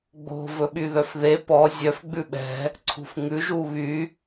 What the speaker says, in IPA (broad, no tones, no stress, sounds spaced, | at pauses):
ɡ͡b o̤ v ɵ ɓ y ð œ f ð e p ɔ zʲ œ f ɡ͡b ʉ ɓ ɛ̤ | ǀʰ ṳ f ŋ ʉ ʒ u β y